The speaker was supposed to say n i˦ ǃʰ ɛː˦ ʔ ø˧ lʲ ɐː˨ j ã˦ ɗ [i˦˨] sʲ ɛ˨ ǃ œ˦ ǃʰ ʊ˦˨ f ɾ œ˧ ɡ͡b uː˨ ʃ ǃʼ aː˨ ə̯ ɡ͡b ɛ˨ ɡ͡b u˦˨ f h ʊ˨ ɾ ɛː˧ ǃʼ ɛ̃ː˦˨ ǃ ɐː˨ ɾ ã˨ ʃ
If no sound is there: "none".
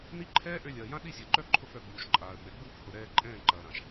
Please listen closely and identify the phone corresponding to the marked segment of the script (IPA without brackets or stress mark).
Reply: i˦˨